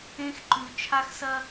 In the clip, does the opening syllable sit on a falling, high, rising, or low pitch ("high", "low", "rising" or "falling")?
high